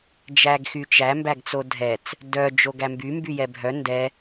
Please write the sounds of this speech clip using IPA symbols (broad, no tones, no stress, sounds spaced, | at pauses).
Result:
d͡ʒ æ ɡ x y t͡ʃ æ m b æ ɡ t͡s o dʱ ɛ t͡s | d œ d͡ʒ o ɡ æ m b y m b y j ɛ bʱ œ n d ɛ